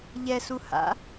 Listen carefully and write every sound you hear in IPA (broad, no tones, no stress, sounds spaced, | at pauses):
ʎ ɛ s u h a̰